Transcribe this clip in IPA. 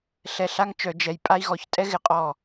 ɬɛ˧˩ɬa˦ŋ t͡ʃœ˧˩˧ d͡ʒɛ˨˦j pʼa˦i̯ ɣɔ˨˦ç tʼɛ˦ɣɪ˧˩ qʼɔ˧˩

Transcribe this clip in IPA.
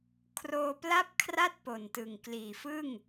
kʰroː˧pla˥˩p̚kʰra˥˩t̚ po˨˩ntɯ˨˩ŋ kliː˨˩fɯ˥˩ŋ

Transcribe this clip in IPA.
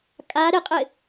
kʼa ɾɪqʼɪ

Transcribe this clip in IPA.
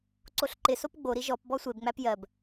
ǀoɬǃɪsop ɡ͡boɾi ʒɔp bɔsʷebŋ͡mæp jɜb

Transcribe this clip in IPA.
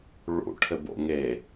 ɭṵ ʈʰɘbo̰ŋe

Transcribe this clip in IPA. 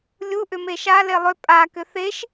lʲu ʔʏmeʃa lelˠʏ pʼa kʏθeʃ

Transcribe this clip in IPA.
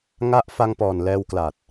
ŋa˦˥ʔ fa˧ŋpɔː˨˩n lɛː˧wkla˨˩t̚

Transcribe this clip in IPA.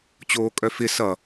t͡ɕoːkʼœfɪ sʌ

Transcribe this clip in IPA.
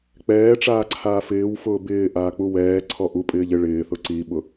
k͡pɛːʈ͡ʂaː ǀʰaːfɪːwfʊː bɪː ʔaːk͡puwɛːǀʰɔ ʔupʼɪːʎ ɪ ɭɪːθʊ ǀiɓʊ

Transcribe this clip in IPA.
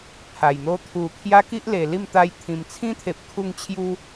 pʰa˨˩j n̪o˧t̪ʰu˨˩kʰja˦ ki˦ʔle˨˩li˥˧m t̪a˧jt̪ʰĩ˨˩mt͡sʰĩ˦t̪ʰe˨p̚ kʰu˥˧ŋt͡ɕʰju˦

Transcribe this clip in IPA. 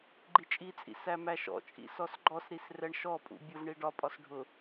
ɡ͡ǃit͡ʃʼit͡sʼḭ sæmæʃɔ̰t͡ʃʼḭ sɔsɡ͡ǃɔsɾis rɛɳʃɔpʼṵ bʲʊvɳi ɖɒpʼɒs ɖʱʊ

